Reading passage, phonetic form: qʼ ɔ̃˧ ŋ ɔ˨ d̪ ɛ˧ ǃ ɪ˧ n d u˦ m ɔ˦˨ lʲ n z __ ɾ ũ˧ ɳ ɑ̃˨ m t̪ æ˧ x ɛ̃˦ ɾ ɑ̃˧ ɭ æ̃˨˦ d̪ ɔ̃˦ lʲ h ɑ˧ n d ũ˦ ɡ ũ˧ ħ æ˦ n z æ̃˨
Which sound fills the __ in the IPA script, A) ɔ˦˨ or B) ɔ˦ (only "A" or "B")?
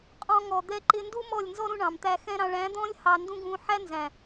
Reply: B